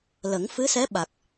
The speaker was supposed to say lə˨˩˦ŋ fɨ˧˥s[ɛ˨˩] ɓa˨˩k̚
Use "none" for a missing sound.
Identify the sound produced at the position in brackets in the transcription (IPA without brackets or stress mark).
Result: ɛ˧˥